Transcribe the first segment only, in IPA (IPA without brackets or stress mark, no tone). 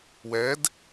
w